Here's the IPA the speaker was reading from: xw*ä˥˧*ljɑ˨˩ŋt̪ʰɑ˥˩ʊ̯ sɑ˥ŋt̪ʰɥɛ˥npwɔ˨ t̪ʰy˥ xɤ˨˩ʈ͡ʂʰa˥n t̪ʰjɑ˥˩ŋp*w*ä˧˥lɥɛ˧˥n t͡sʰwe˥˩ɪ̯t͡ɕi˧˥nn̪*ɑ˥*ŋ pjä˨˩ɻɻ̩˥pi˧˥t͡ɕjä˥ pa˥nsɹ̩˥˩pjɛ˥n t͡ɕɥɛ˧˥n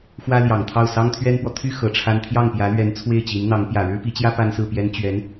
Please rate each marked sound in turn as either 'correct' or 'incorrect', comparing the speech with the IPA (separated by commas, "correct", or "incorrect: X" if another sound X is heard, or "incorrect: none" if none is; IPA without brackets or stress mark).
incorrect: ä˥, incorrect: j, incorrect: ɑ˧˥